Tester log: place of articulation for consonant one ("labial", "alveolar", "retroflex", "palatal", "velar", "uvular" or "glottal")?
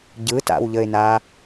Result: palatal